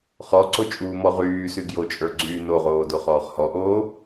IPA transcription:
χɔǀo t͡ʃʼuːmɔʁyːsy ɡjot͡ʃʼə˞ ɡ͡ǀyːnoʁoː doχɔːχhɔʔoː

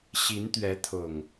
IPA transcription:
ɕi˨˦nt̪ɥɛ˨˦t̪ʰʊ˨˩ŋ

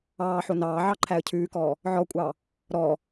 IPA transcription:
ɑːħo nɑː ʕɑǃʰæə̯cʰʉːkɔː | ʕɔkʷʼɑ | ɾɔ

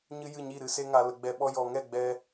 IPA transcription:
ɲɨ˦ jɨ˦˨ɲi˦˨ ɾɨ˨se˧ŋa˨ lə˧ɡ͡bɛ˧ɓɔ˦ jɔ˨ŋɛ˦˨ ɡ͡bɛ˧

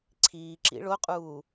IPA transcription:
ǀʰiːǁḭ ɭoqʼuː

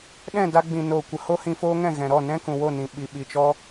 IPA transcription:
ɗɛ̃˦˨da˧ɡ͡bĩ˨ noː˨kʷə˨ ho˦hĩ˧foː˦ŋɛ̃˦˨ ɣɛ̃˨ ɾɔ˦˨nɛ̃˦ kũ˨wo˦˨nĩ˨ ɓi˨ɓi˨ t͡ʃɔ˦

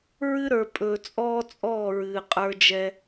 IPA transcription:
ɹɨ˦ɾə˞˨ pʼɵː˨ t͡sʼɔː˦t͡sʼɔː˦˨ɹɨː˨ qʼə˞˦d͡ʒɛ˦

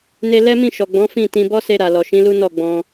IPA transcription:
ne˧ lɛ˦mĩ˦˨ ʃɔ˨ɡ͡bɔ̃˨˦ fĩ˦˨tĩ˧ bɔ˦se˧ ɾa˨lɔ˨ʃĩ˨˦lu˦ nɔ˦˨ɡ͡bɔ̃˧

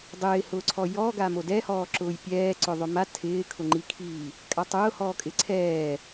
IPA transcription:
dˤɪːhʊːǀʰɔ jɔɡa modɛhɔː ǁʊːjpʲɛː ǀʊðˤʊma tʰɪː kʰʊŋ͡ǃikʰiː | kʼatˤʊːhɔːkʼɪ ǀʰɛː

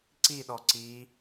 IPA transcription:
ǀiɗɔ ǀi

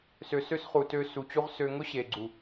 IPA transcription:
sø˨ sø˦sχu˨tø˧ su˨t͡ɕu˧ʁ sø˧ ŋʊ˦ɕe˨ɡ͡ǀu˨

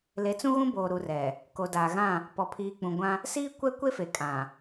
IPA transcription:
le˨˦t͡sũ˦ɣũ˦boː˨ ɾu˨rɛ˨ | ko˨daː˨ɣã˦˨ | pɔ˨pʰiː˨k͡pũ˨ɡʷã˦ | siː˦kʷɛ˦kʷe˦fe˨ kʼã˨

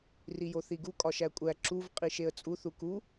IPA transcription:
rijoθiɡu kʼɒʃækʷʼæ ǁuv qʼiʃeə̯t͡sʼu θuku

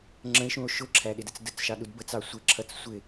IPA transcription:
ŋ͡ǁə̃e̯ʃũo̯ ʃʊǁʰæɗɪdət͡s dət͡sʃɑɗud bət͡sɑ sʷɪǁʰʌt͡s sʷɪ

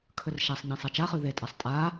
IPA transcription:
kʰɵrʃasˤɲẽ sˤat͡ʃaχʉ ðetʼasˤ tʼa

